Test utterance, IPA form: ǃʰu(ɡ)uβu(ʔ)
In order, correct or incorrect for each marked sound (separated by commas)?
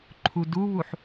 incorrect, incorrect